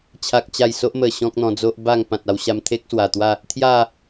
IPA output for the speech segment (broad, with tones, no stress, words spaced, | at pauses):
t͡ɕʰa˦k̚t͡ɕa˥˧j so˦ʔmə˨˩ ɕɔ̃˦k̚n̪ɔ̃˧ d͡zo˦ʔba˥˧ŋ pã˨t̚a˧wɕa˧m t̪ʰe˦k̚swa˨˩ t̪wa˥˧ | t̪ʰja˥˧